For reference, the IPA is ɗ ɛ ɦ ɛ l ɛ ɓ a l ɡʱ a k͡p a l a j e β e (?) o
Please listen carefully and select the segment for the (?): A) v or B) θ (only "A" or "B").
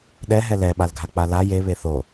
B